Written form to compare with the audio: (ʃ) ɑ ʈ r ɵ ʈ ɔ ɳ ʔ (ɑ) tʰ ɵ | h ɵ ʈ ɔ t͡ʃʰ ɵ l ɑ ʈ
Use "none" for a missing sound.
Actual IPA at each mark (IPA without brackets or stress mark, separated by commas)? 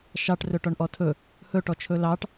ʃ, ɔ